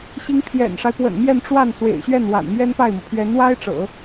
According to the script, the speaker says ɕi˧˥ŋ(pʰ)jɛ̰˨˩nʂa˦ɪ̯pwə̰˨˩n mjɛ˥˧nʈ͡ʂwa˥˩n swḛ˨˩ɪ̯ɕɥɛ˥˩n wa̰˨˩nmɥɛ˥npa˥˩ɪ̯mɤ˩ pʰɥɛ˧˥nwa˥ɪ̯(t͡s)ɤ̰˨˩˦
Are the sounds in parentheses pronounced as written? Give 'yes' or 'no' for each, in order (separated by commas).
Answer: yes, no